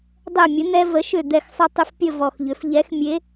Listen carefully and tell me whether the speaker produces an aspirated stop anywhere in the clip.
no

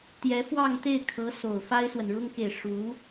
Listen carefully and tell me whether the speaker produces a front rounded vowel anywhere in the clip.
no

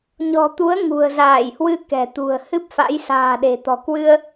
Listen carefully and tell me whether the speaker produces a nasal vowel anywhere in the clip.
no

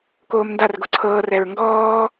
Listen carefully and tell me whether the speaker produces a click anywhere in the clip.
yes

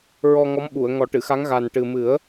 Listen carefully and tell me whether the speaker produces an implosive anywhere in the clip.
yes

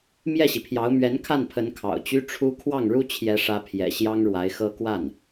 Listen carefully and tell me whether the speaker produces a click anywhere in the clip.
no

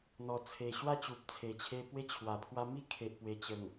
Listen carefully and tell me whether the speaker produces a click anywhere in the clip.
no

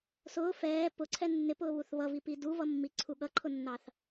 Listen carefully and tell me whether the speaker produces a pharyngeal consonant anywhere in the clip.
no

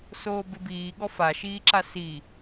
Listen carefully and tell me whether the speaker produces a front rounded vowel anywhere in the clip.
no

